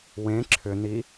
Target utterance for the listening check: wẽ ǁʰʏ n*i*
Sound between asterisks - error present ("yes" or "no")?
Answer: no